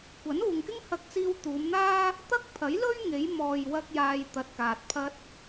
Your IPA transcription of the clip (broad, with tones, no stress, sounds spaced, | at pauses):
kʷ ɐ˨˥ n uː˨ ŋ k ɪ˥ ŋ h ɐ˧ k̚ t͡s iː˧ w t̪ uː˨˧ m n̪ aː˥ | t̪ ɐ˥ k̚ pʰ ɐ˨˥ j l ɵ˥ ɥ ŋ e˨˧ j m ɔː˨ j w ɐ˧ k̚ j aː˧ j t̪ ɐ˨ t̚ k aː˨ t̚ pʰ ɐ˥ t̚